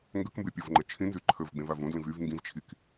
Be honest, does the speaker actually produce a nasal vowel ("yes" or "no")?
yes